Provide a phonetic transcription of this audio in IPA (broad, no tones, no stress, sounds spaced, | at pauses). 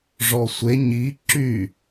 ʐ ɔ sʷ e ɲ i ǁ y